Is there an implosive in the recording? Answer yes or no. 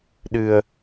yes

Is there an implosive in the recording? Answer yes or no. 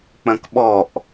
yes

